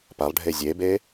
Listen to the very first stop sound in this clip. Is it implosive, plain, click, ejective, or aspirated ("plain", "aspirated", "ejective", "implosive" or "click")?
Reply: plain